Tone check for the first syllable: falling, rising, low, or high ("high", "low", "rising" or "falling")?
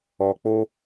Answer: low